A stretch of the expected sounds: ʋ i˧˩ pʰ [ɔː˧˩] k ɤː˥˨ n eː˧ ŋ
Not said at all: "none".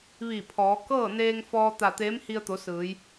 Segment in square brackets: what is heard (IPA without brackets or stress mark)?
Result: ɔː˩˧